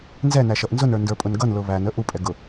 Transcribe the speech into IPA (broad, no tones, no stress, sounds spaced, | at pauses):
n z ɛ n æ ʃ ʌ ʔ n z ʊ n ə˞ n d ə˞ pʼ ʊ n ɡ ʌ n l ʊ β æ n ə ʔ u pʼ ɛ ɡ ʊ